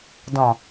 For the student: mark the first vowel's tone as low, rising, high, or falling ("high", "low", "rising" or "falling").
low